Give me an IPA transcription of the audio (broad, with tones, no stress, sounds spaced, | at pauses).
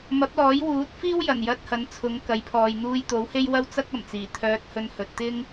m ɐ˨˥ p̚ l ɔː˨˥ j w uː˨˥ t̚ f iː˥ w j ɐ˨˩ n j ɐ˧ t̚ h ɐ˨˥ n t͡sʰ ʊ˨˥ ŋ k ɐ˨˥ j pʰ ɔː˨ j n̪ uː˧ j t̪ o˨˥ w h e˥ j w ɐ˥ w t͡s ɐ˥ k̚ ɐ˨˩ m t͡s iː˨˩ t̪ʰ œː˧ t̚ h ɵ˧ n h ɵ˨ t̚ t̪ ɪ˥ ŋ